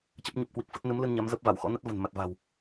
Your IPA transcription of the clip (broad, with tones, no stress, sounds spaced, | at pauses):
t͡ɕ ə˦˥ p̚ ɲ ə˦˥ p̚ k w i˨˩ k̚ f ə˦˥ t̚ n ɨ˨˦ m l ɨ˧ n ɲ a˨˦ m z ə˦˥ p̚ v a˧˩ w x ɔ̰˧˥ n ə˦˥ t̚ v ə̤˨˩ n m a˨˩ t̚ v a̤˨˩ w